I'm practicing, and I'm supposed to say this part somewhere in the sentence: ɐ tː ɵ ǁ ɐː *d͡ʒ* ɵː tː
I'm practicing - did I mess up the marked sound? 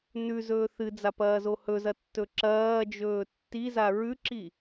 no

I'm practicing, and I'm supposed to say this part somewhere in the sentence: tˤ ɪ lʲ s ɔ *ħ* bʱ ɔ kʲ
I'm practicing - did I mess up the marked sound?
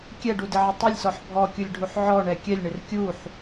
no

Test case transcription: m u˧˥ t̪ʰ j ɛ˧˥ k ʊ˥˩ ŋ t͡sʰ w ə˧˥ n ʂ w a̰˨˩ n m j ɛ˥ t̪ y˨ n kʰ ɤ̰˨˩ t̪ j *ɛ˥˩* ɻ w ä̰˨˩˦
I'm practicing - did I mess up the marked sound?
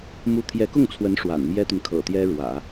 yes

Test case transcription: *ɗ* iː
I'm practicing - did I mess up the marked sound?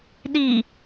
no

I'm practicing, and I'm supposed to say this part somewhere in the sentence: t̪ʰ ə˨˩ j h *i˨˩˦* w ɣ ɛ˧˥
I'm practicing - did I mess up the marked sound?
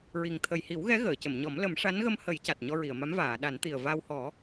no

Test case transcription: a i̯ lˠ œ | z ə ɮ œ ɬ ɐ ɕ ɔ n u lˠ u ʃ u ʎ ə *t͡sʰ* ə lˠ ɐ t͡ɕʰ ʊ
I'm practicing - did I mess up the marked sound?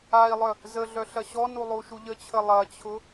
yes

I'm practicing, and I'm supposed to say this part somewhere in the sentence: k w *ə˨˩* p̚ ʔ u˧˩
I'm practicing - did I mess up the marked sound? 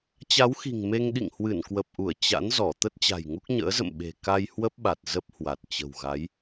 no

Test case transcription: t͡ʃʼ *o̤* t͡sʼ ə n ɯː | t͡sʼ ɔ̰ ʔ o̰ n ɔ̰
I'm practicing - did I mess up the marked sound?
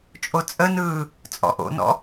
yes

